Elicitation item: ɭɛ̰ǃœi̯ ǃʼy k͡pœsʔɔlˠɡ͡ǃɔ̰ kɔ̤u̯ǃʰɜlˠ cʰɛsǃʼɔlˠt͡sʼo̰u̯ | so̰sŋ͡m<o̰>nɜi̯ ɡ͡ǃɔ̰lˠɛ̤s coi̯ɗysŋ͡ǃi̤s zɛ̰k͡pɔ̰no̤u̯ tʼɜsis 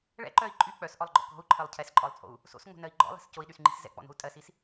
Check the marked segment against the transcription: incorrect: o̤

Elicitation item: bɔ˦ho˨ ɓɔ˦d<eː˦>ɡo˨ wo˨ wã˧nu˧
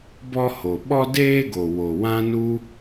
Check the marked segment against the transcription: correct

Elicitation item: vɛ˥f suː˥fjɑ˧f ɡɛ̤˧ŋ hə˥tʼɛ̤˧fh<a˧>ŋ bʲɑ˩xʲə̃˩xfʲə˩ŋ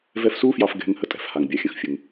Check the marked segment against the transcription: incorrect: a˩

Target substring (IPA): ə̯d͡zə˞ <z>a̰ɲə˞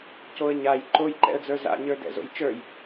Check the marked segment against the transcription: correct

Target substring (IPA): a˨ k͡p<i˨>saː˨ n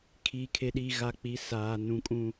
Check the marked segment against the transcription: incorrect: i˨˦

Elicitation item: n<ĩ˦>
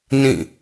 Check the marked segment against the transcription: incorrect: ĩ˦˨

